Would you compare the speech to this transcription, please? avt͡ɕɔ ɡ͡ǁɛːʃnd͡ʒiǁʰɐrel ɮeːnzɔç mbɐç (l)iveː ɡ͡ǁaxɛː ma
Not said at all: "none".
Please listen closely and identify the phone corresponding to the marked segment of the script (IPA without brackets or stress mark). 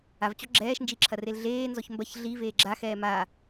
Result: ɮ